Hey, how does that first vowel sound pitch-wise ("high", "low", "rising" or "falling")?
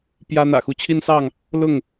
high